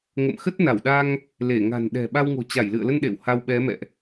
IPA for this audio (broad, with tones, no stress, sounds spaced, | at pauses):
ŋ ə̰˧˨ m x ə˦˥ t̚ n a˧˩ w ɗ a˧ ŋ | l e˧˩ ŋ a̤˨˩ n ɗ ɛ̤˨˩ ɓ a˧ w ŋ o̤˨˩ t͡ɕ a˧˩ j l ɨ̰˧˨ ə̯ l ə˧ n ɗ ḛ˧˨ w h a˧ w ɓ ɛ˨˦ m ɛ̰˧˨ ʔ